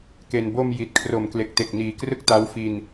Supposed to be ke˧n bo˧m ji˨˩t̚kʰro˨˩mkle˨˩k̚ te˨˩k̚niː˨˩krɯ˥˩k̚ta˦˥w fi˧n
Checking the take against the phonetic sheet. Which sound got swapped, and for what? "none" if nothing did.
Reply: none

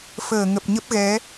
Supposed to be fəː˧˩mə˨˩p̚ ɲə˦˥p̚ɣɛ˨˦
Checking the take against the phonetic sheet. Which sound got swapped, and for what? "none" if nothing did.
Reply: m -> ŋ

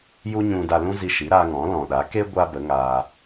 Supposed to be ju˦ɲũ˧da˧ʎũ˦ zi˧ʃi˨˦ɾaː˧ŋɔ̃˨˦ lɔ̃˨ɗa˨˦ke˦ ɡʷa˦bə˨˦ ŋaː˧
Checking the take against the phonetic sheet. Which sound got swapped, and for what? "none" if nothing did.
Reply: ʎ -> l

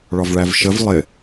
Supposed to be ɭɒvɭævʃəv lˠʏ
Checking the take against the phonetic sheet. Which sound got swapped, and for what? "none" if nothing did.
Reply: ʏ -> ɪ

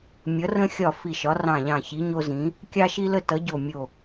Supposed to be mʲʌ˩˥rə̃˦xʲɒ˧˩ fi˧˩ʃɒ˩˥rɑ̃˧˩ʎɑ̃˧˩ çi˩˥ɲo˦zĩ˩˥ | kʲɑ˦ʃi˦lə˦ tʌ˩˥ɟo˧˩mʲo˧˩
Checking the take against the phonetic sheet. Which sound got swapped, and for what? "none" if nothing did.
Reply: none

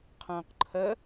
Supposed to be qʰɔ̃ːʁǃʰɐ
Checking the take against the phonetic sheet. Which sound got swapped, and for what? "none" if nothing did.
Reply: ʁ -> q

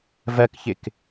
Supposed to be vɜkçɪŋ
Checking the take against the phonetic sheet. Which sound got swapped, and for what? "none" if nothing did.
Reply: ŋ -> k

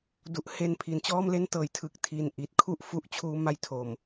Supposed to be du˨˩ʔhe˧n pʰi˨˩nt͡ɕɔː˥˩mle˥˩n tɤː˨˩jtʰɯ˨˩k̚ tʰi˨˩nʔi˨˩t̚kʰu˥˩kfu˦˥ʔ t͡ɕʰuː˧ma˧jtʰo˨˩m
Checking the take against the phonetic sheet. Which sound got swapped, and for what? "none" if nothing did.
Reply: k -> ʔ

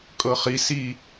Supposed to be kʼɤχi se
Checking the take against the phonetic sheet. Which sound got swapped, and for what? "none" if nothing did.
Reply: e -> i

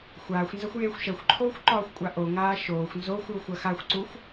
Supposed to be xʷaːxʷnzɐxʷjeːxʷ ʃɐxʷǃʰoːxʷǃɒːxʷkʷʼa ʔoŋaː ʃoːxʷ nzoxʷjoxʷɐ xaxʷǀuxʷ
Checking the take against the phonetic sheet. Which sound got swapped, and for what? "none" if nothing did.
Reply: none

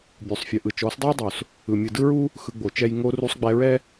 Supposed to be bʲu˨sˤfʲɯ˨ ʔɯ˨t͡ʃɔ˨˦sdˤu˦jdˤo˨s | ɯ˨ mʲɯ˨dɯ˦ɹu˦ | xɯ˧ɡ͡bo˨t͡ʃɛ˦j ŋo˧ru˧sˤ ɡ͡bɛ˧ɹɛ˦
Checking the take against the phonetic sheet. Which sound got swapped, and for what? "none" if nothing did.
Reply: none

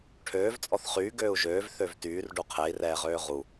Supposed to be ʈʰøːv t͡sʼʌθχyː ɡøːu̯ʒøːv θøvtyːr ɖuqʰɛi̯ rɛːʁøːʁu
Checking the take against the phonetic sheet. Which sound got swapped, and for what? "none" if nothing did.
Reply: ʌ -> ɔ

